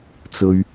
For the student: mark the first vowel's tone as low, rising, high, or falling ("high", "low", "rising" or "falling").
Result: low